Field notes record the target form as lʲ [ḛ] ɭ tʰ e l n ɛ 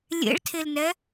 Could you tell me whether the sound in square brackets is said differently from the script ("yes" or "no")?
no